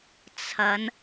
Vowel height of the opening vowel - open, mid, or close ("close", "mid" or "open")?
open